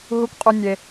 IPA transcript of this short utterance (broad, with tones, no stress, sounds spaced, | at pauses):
ɦ u˧ kʷ qʼ u˧ nʲ e˧